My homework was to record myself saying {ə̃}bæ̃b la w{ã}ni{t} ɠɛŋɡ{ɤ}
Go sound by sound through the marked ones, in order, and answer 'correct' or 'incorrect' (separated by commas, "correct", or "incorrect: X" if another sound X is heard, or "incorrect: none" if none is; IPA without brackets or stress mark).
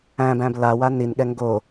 incorrect: æ̃, incorrect: a, incorrect: n, incorrect: o